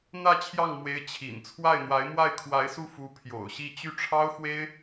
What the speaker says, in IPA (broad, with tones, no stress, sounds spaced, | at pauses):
n̪ ä˥˧ t͡ɕʰ j ɑ˥˩ ŋ m w e˧˥ ɪ̯ t͡ɕʰ ḭ˨˩ n t͡sʰ w a˥˩ ɪ̯ n̪ w a˧˥ ɪ̯ m w a˥˩ ɪ̯ kʰ w a˧˥ ɪ̯ s u˥˩ f u˧˥ pʰ j o̰˨˩ ʊ̯ ɕ i˥˧ t͡ɕ y˥˩ ʈ͡ʂʰ ɑ˥ ʊ̯ x w e˥ ɪ̯